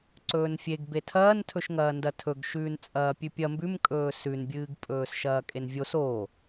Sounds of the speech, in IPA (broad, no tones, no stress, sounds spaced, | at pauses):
ǀ ɵː n fʲ e ɡ b e tʰ ɐː n tʰ ɵ ʃ ŋ ɐː n d ɐ tʰ ɵ ɡ ʃ ʉː n t͡sʼ ɐː pʲ ʉ pʲ ɐ m b ʉ m kʼ ɵː s ʉ n bʲ ɨː ɡ pʼ ɵː s ʃ ɐː kʼ e n vʲ o s o